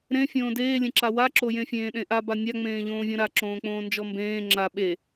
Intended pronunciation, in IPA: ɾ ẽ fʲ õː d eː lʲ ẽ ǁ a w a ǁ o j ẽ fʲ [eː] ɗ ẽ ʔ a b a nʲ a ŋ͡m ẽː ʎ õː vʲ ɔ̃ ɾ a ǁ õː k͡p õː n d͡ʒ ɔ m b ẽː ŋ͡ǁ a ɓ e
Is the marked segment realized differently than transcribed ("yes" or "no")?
yes